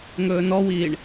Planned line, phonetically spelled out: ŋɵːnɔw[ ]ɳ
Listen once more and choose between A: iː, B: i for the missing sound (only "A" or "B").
A